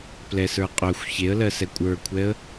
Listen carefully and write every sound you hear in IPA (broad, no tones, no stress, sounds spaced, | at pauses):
p l ɛ s ə˞ qʼ œ xʷ ç e ə̯ l ɜ s ɛ kʷʼ ə˞ kʷʰ ɛ ə̯